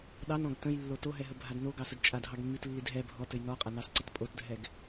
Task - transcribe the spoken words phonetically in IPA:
ɗɑnɔ̃ɡ tə̃jlːo toɦɛɦəbʱad noɡɑsəd t͡ʃʼadʱɑɡmːitlːid ɦɛ bʱɔtɘj nɔqʼanɑsǀət pʼotdʱɛɡ

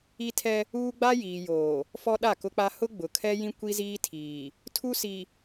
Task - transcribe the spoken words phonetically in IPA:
i˦tʰɛ˦ | uː˦ɡ͡ba˦jiː˨joː˨ | fɔ˦ɗa˦˨kʊ˦k͡pa˦ hʊ˦ɡ͡bʊ˨kʰɛ˦jĩ˦ kʷi˦ziː˦tʰiː˨ | tʰu˦si˨

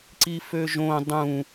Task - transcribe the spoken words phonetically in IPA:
ǀiføʒõ dˤũ

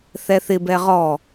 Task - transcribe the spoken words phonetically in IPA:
θɛθɪbɛ ʁɔ

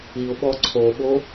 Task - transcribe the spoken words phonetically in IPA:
iʊ̯ɓɔ ǀʰoɓo

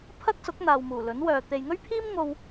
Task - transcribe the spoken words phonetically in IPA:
pʰɐ˥k̚sʊ˨˥k̚n̪aː˨w muː˨˩lɵ˨˥nwœː˨ t̪e˨jŋɵ˥ɥpʰiː˥m ŋo˧w

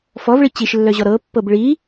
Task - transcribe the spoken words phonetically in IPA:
fɔvɭi t͡ɕiʃlːœʑɔ ɾɤ pːɤbɭi

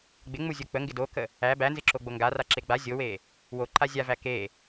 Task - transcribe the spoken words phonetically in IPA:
ɡ͡bɪŋ͡muzʲo k͡pəŋɡɪ dokə | æ bænzɪǁoɡ͡bo ŋɡaraǁe ɡ͡ba zʲowe | woǃa zʲavæ ke

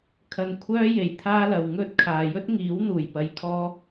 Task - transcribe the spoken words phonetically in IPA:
kʰɐ˧nkʷʰœː˥ je˨˩jt̪ʰaː˥lɐ˨w ŋɵ˥t̚ kʰaː˨ jɵ˥t̚ŋiː˨˥w n̪uː˨˩j pɐ˧jkʰɔː˥

